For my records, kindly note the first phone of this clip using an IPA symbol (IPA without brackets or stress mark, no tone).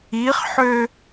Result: i